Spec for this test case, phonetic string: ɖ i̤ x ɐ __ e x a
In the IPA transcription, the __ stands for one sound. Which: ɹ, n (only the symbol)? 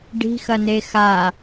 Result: n